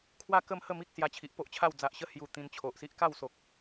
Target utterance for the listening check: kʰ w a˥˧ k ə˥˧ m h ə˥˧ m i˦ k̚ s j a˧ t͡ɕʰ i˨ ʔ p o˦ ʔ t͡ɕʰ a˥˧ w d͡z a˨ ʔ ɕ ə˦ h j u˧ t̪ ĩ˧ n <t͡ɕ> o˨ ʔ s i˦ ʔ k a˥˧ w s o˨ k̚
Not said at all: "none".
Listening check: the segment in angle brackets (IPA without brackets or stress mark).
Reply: t͡ɕʰ